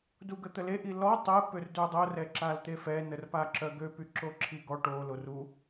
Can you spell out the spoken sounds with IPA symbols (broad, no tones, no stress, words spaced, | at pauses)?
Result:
duɡət̪əle ʔilɔ tˤɛ pørdødˤo rɛǁalt̪efɛ nərpaǁœɡø pyǁoǁʰiɡɔ ʈo loru